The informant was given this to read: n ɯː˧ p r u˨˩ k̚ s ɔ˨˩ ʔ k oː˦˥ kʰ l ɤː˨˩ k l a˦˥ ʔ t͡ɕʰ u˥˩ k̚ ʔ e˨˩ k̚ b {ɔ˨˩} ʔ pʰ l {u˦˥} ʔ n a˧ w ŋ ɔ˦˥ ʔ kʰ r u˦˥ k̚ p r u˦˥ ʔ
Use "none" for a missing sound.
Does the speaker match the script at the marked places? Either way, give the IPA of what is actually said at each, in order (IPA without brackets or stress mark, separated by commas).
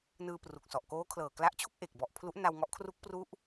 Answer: ɔ˨˩, u˦˥